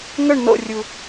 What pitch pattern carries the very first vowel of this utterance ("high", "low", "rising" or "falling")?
falling